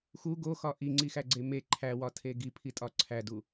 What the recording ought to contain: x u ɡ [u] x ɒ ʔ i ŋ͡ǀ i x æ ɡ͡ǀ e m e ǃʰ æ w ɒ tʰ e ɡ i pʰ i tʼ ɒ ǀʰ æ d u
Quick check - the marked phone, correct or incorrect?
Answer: incorrect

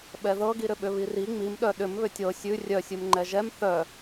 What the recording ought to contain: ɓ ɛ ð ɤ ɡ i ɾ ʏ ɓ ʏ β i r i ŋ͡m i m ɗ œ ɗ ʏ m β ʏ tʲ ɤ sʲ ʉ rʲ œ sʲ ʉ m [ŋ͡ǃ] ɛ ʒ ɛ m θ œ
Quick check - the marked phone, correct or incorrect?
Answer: correct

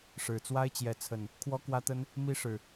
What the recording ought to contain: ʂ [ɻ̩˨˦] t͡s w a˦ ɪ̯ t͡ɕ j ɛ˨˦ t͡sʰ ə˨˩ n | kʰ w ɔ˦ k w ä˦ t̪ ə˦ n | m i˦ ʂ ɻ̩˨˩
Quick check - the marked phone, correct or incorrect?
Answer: incorrect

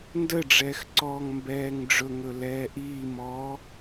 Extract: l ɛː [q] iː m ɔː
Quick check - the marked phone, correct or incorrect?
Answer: incorrect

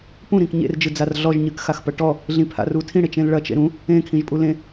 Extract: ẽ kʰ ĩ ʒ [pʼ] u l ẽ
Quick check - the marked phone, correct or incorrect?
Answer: correct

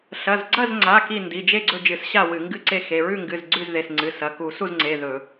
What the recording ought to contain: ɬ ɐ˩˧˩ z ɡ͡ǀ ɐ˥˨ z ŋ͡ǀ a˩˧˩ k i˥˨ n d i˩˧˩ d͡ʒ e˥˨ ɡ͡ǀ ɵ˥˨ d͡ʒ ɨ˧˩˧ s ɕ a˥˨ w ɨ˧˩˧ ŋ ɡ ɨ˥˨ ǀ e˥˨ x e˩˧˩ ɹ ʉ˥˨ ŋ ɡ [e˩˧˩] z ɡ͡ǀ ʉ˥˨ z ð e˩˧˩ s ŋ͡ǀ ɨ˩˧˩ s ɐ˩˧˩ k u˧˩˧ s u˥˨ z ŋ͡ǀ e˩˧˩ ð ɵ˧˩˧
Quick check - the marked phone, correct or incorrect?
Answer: incorrect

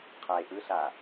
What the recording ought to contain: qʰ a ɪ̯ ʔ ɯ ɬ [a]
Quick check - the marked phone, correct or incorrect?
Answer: correct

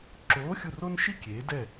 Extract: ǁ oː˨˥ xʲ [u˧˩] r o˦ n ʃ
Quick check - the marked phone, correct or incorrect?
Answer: correct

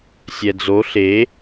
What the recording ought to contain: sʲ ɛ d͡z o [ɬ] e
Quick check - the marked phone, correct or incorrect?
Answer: correct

